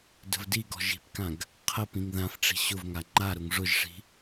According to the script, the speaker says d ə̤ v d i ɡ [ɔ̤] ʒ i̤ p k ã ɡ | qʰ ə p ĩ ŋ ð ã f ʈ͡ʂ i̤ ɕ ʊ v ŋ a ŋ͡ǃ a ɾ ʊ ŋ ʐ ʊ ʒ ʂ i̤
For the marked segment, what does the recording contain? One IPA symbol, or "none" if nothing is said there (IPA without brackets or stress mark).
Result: ɔ̤